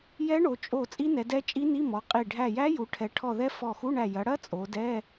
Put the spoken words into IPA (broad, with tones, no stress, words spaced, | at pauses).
jɛ˦˥ɳo˩˧ t͡ʃʼo˧˩ t͡sʼi˦˥nɛ˩˧dɛ˦˥ t͡ʃʼi˦˥ni˧˥˧mɔ˩˧qʼi˧˩ ɖʱæ˧˩jæ˦˥ju˩˧ʈʰɛ˩˧ ʈʰɔ˧˩ðɛ˦˥ fɔ˧˩xu˧˥˧ɳæ˧˩ jɐ˩˧ɽɐ˦˥ t͡sʼo˩˧dɛ˧˥˧